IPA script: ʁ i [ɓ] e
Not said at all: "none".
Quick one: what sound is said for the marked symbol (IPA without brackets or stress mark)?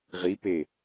p